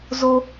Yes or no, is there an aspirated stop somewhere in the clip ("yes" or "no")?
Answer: no